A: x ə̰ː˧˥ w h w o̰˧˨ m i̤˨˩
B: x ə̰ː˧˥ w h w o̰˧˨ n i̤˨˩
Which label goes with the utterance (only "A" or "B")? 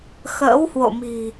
A